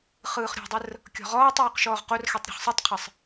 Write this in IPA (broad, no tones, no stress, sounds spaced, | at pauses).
χ ɯː χ ɾʲ ɔ̤ dˤ ə r | kʲ ɔ̤ ʁ ɔː tˤ uː q ʃ ɔː ʁ q o r x ɛ tˤ ɾʲ o̤ χ sˤ ɯ tˤ qʰ ə sˤ